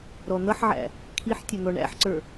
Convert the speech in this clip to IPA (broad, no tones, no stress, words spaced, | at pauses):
ɾɔn̪ʌħʕæ̰ | kʰiħtʲə n̪ɔɳæ̰ħǀə˞